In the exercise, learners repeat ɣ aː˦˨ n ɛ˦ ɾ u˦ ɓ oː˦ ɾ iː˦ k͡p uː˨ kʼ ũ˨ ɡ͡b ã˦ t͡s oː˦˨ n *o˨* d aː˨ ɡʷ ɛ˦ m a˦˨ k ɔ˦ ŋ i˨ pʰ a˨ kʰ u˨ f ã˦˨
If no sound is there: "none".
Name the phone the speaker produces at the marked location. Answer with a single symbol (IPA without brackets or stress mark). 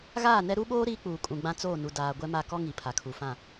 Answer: u˨